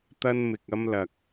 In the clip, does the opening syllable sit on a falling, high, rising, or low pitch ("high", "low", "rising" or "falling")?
high